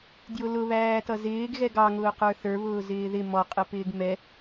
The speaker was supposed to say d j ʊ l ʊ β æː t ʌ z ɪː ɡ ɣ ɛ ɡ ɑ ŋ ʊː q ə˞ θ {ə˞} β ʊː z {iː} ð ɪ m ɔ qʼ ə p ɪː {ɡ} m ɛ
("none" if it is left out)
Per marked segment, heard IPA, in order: ə˞, ɪː, ɡ

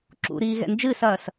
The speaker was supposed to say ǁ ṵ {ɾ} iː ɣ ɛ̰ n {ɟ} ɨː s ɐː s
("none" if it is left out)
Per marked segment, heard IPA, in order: ɾ, d͡ʒ

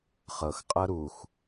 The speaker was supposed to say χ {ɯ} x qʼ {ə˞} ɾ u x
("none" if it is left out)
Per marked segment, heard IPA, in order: ɤ, ɤ

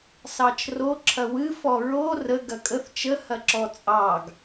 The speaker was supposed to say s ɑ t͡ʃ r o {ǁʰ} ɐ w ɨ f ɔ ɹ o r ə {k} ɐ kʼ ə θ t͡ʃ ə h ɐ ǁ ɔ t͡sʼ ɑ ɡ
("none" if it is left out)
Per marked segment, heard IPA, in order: ǁʰ, ɡ

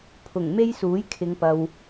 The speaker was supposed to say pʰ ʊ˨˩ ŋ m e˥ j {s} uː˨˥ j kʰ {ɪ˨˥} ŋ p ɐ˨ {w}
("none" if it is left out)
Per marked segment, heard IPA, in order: s, ɪ˨˧, w

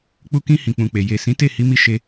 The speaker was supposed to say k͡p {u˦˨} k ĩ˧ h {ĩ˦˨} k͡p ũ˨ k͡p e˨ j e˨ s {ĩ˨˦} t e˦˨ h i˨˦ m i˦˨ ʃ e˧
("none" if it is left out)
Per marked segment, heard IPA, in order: u˧, ĩ˨, ĩ˨˦

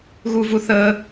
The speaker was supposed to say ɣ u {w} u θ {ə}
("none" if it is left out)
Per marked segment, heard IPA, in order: v, ə

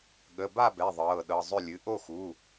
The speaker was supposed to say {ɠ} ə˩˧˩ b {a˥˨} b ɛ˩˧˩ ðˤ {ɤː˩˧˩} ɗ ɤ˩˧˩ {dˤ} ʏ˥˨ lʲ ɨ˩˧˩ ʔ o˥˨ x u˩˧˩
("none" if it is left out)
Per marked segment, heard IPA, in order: ɠ, a˥˨, ɤː˩˧˩, zˤ

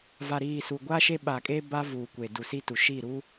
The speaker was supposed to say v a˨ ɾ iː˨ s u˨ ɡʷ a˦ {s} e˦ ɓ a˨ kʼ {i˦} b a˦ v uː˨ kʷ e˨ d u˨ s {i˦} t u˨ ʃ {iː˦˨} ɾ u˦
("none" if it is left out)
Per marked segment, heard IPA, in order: ʃ, e˦, i˦, iː˦˨

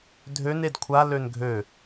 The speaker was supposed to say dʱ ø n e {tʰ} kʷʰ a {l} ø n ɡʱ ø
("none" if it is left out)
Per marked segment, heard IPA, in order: d, l

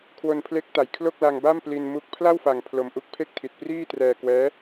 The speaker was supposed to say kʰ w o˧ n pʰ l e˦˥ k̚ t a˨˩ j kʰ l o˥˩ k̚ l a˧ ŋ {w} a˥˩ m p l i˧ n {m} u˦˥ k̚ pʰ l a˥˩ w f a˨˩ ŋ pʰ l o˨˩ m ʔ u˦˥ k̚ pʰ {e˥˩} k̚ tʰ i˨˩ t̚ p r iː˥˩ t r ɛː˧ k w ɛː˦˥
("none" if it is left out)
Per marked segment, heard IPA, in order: b, m, e˥˩

